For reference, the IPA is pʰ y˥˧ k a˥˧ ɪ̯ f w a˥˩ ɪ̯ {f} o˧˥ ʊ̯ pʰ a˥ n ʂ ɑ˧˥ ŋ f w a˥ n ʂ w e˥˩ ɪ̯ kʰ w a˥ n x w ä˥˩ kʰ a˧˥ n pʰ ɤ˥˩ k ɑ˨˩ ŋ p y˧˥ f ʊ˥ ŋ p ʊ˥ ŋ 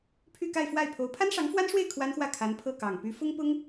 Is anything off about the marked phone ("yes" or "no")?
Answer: yes